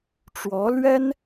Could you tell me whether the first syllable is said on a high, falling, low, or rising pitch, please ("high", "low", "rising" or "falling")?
rising